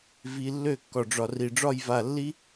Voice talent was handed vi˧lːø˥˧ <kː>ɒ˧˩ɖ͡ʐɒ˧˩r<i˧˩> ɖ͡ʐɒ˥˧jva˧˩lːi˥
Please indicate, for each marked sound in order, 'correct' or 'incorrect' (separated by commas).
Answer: correct, correct